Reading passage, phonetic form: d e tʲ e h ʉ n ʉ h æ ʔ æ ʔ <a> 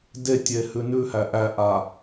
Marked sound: correct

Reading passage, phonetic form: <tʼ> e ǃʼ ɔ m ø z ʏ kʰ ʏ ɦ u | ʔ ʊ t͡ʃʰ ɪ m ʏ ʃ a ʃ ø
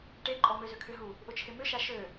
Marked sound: incorrect: ʈ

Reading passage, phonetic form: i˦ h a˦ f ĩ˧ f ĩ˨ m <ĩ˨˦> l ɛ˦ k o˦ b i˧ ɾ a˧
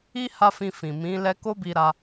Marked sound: correct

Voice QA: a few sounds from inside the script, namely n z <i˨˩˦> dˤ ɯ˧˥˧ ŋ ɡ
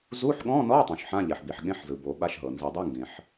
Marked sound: correct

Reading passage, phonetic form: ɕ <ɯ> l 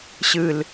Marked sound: correct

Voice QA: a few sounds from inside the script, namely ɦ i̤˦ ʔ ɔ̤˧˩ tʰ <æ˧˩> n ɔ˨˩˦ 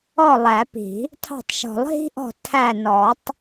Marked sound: correct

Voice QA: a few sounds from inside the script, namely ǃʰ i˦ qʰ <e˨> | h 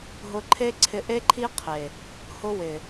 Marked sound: correct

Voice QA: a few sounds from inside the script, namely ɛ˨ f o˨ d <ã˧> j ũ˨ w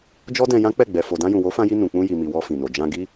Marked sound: correct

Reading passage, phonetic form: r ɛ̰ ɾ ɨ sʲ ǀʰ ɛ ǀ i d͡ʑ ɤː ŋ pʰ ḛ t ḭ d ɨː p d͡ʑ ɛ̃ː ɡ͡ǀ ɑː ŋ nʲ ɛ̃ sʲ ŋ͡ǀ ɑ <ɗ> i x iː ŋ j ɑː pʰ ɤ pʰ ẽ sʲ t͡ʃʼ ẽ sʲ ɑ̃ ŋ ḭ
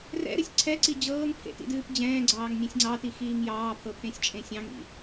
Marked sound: incorrect: t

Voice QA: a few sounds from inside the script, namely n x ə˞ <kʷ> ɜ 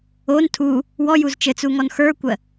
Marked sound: correct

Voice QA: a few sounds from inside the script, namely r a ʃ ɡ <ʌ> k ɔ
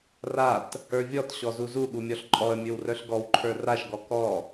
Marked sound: incorrect: ɔ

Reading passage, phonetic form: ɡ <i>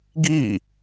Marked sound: correct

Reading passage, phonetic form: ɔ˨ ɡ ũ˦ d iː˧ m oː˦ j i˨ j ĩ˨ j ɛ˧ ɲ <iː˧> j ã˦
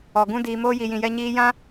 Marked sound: correct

